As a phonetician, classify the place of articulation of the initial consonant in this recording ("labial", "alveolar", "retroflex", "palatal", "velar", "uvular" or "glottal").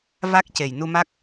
labial